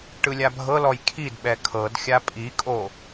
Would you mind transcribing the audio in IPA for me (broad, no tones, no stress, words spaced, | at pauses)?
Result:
ʈɯlʲabʱɤlɔj kʰidɓɛ kʰɤd xʲapʼikʼo